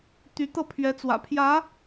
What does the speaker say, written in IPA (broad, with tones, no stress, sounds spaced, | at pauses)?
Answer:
t̪ y˧˥ t̪ ɤ˥˩ pʰ ɥ ɛ˧˥ t͡s w ä̰˨˩ pʰ j ä˧˥